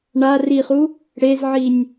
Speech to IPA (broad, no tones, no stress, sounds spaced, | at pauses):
ɳ a r i χ u | ɽ e z ʕ i nʲ